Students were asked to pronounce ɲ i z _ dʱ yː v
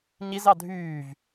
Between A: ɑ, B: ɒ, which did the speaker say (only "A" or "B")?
A